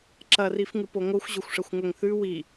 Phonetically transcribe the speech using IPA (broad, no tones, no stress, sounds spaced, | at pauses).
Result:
ǁ ɐ r i f ŋ ɨ p o ŋ o xʷ ʑ ɵ xʷ ʂ ɐ xʷ ŋ ɵ ŋ θ ʉ w i